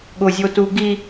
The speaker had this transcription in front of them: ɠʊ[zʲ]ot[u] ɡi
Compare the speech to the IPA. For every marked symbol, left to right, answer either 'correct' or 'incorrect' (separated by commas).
correct, correct